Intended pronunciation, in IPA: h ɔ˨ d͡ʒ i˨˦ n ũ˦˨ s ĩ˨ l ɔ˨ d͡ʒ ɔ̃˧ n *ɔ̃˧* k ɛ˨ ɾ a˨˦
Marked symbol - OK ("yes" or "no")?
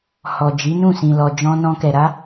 yes